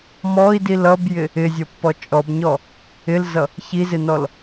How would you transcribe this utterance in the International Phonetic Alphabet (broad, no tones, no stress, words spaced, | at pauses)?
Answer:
mɔi̯dil ʌbjɪ | ɪzʲʌpːɔ t͡ʃʼɔbɲɔ | ɪlzʌ | çizɪnɔl